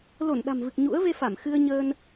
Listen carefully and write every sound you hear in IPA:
l o˧˩ n ɗ a̤˨˩ m v ɨ˨˩ k̚ ɲ ṵ˧˥ ə̯ v e˧ f a˧˩ m x ɨ˧ ə̯ ɲ əː˧ n

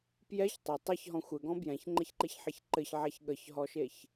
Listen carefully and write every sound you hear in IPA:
p j ɛ ç tˤ ɛ tˤ ɛ ç ɦ ɔ̃ xʷ ɘ ɡ ɔ̃ b j ɛ̃ ç ŋ͡ǃ e ç ǃ e ç ħ e ç ǃ ɘ ç ʕ a ç ɠ ə ç ɦ ɔ ʃ e ç

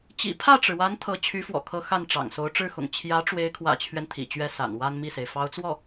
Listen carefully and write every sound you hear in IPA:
t͡ɕ ḭ˨˩ pʰ ä˥˩ ʈ͡ʂ ɻ̩˩ w a˧˥ n t̪ʰ ɤ˧˥ t͡ɕʰ y˧˥ f w ɔ̰˨˩ kʰ ɤ˧˥ x a˥˩ n ʈ͡ʂ ɑ̰˨˩ ŋ s o˧˥ ʊ̯ ʈ͡ʂ ɻ̩˥˩ x ʊ̰˨˩ ŋ t͡ɕʰ j ä˧˥ ʈ͡ʂ w e˧˥ ɪ̯ kʰ w ä̰˨˩ t͡ɕʰ ɥ ɛ˦ n t̪ʰ ḭ˨˩ t͡ɕ ɥ ɛ˥ s a̰˨˩ n w a˥ n m i˥˩ s e˩ ɪ̯ f ɑ˧˥ ʊ̯ t͡s w ɔ˥˩

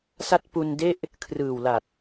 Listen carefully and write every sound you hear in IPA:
s a˦˥ t̚ p u˧ n d e˥˩ ʔ | kʰ r ɯː˨˩ w l a˨˩ t̚

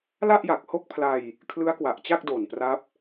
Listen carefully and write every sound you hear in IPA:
l a˥˩ ʔ j a˨˩ k̚ h o˥˩ k̚ pʰ l a˧ j | kʰ l ɯ˦˥ a̯ k w a˨˩ ʔ t͡ɕ a˥˩ k̚ d o˨˩ n p r a˦˥ p̚

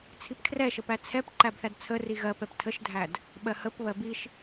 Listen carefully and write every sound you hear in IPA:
t͡sʰ i p kʰ r ɛ ʃ ə p æ t͡sʰ ɛ p ǃ æ b θ æ d t͡sʰ ə r i ɣ ɜ p ɛ p tʰ ə ʃ dʱ æ d | ɓ ɜ h ə p β ɜ b i ʃ

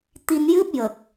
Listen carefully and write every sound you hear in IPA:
t̪ i˧ n j ɨ˦˥ p̚ j ə˨˩ k̚

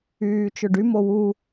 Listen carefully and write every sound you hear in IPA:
yː t͡ʃ ɵ ɖ y m o w u

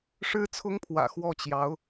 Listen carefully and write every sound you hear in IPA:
ʂ ɻ̩˥ t͡sʰ ʊ˥ ŋ pʰ w ä̰˨˩ x w ɔ˥˩ t͡ɕ j ɑ˧˥ ʊ̯

